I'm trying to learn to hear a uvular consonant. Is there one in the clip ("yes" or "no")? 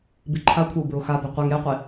yes